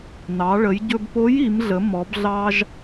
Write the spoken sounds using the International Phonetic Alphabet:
n ɑ˩˧ ɭ ə˩˧ j ɟ ɵ˧ b p o˧˥ j i˩˧ m ɮ ə˩˧ m ɔ˩˧ b ɮ ɑ˧ ʒ

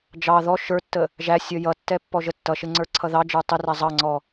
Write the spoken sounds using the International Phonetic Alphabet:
d͡ʒ ɑ ð ɔ ʃ ə˞ tː ə | ʒ æ sʲ ʌ j ʌ tː ɛ pː ɔ ʒ ə tː ʌ ʃ ɪ ŋ͡ǀ ə˞ ǀʰ ʌ ð ɑ d͡ʒ ə˞ tˤ ɪ r æ zˤ ɑ ŋ͡ǀ ɔ

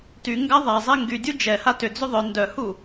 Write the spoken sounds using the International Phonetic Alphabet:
t y ŋ ɡ a ðˤ a zˤ e ŋ ɡ y dʲ u d͡ʒ ɛ h a t ʏ d͡z ʏ ðˤ œ n d œ h u

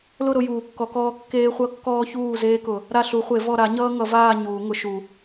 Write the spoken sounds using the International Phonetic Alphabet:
l ʊ˦˨ ɾ ʊ˦˨ j uː˨˩˦ kː ɔ˨˩˦ k ɔː˦ kː eː˦ χʷ ʌ˦ kː ɔː˦ ç uː˦˨ z eː˦ k ʊ˨˩˦ | ɾ a˦˨ ɬ u˨˩˦ χʷ e˨˩˦ v ɔ˦˨ ɾ a˨˩˦ ɲ ʌː˦ ŋ ʌ˨˩˦ v aː˦˨ ɲ uː˨˩˦ ŋ ʊ˨˩˦ ʃ u˨˩˦

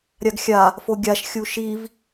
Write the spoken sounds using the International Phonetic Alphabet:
ɾʲ a ɡ xʲ a | f o ɡʲ a ʃ xʲ u ʃ i v

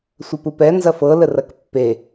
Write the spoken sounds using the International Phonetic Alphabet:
sʷ ɐ p u p ɛ n z ɐ f ɤ l ə r ɐ k pː e

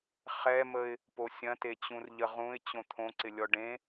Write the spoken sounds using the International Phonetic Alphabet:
χ ɛ m ə ɪ̯ | p o sʲ ɐ̃ t e t͡ɕ ũ r ʎ ə ʁ ũ ɪ̯ t͡ɕ õ t̪ʰ õ ǀ ɪ lʲ ɔ ɖ ẽ

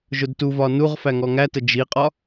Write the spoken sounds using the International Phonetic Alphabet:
ʒ ʊ d t u v ɒ n u ʁ f æ ŋ ɔ ŋ æ t ə d͡ʒ i qʼ ɒ

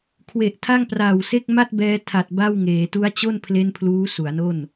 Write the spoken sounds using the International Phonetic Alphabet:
kʰ w e˨˩ ʔ tʰ a˥˩ ŋ p r aː˨˩ w s e˥˩ k̚ m a˥˩ t̚ b ɛː˧ tʰ a˨˩ t̚ b a˥˩ w ŋ eː˩˦ t u˦˥ a̯ t͡ɕ o˥˩ n pʰ l e˥˩ n pʰ l uː˦˥ s u˩˦ a̯ n o˥˩ n

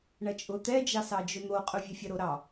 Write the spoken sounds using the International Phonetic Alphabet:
ɳ ɐ t͡ʃʼ ʊ t̪ ɛ d͡ʒ ɑ s ɑ d͡ʒ ʊ n̪ o qʼ ʊ vʲ ɛ fʲ ɐ ɾ o ɾ ɑ

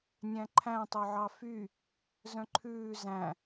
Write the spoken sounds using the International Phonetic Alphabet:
nʲ æ̃ ǃʰ æ̃ tˤ œ ʕ ɑ f y | z œ̃ ǃʰ ʉː z æ̃

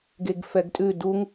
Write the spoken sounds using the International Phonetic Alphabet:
ɡ e ɡ f ɛ ɡ tʼ ʉ d u ŋ

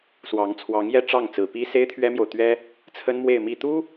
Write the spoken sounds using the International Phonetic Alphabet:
s w ɑ˧˥ ŋ t͡sʰ w ɑ˧˥ ŋ j ɛ˥ ʈ͡ʂ ɑ˥˩ ŋ t͡s ɹ̩˨˩ p i˥ s e˥ ɪ̯ t̪ʰ ɥ ɛ˥ m j o˨ ʊ̯ t̪ ɥ ɛ˥ | t͡sʰ ə˥ n m w e˥˧ ɪ̯ m i˥˩ t̪ u˥

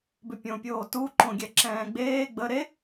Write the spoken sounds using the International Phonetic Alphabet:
b ʏ pʲ õ pʲ oː t u ǃ õ ɡʲ ɛ ǁ ɛ̃ː ɡ͡b eː ɡ͡b ə ɾ e

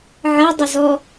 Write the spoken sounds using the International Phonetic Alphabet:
ʕ ɐ dˤ ɵ z ɔ

